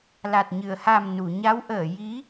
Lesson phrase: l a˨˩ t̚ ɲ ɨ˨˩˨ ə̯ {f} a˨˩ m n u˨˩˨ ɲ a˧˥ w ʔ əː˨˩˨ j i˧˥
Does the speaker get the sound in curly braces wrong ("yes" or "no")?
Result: yes